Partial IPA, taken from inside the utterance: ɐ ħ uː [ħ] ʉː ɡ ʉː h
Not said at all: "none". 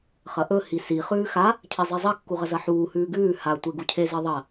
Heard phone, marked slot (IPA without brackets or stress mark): h